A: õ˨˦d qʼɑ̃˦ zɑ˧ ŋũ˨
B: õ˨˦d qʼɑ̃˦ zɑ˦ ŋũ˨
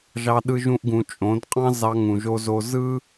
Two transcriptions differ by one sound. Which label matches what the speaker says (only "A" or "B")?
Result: A